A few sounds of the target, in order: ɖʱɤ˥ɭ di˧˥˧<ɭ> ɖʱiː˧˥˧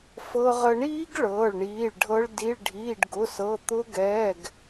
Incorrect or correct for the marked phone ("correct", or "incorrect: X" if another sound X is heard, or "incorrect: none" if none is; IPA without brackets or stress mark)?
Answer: correct